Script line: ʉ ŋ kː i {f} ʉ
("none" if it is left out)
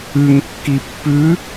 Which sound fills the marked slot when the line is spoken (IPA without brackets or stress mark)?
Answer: pː